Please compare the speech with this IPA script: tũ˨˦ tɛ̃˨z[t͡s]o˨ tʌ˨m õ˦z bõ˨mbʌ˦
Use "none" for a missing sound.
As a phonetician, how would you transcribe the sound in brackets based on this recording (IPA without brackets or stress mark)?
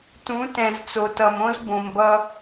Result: t͡s